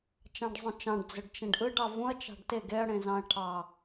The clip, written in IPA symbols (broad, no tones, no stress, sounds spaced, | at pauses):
t͡ʃ ɑ̃ ɖ zˤ ũ t͡ʃ ɑ̃ ɖ d͡z ø ɖ t͡ʃ ẽ ɖ ʔ ɯ ɖ ɑ v ũ ɐ̯ t͡ʃ ɑ̤ ɖ t e ɡ e ɐ̯ ɽ ẽ z ɑ̃ ɐ̯ ʈʰ ɑ